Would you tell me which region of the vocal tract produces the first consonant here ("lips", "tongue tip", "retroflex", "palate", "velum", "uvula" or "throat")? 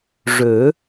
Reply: retroflex